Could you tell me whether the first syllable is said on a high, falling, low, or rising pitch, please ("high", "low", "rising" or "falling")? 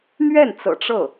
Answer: falling